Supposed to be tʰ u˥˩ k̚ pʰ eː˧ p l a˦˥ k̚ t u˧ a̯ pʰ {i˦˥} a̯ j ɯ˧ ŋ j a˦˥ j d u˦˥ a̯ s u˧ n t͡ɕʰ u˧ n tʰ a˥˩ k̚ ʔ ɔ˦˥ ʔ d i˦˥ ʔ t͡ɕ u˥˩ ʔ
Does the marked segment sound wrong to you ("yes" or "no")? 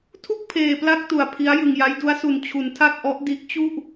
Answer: no